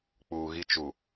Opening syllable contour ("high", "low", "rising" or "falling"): low